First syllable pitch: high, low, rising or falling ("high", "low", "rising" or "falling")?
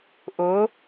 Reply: rising